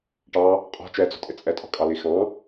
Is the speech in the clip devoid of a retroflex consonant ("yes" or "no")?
no